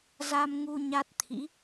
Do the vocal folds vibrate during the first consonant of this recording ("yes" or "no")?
yes